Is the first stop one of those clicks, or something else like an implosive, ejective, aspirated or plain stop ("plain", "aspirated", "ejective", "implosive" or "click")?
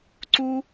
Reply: click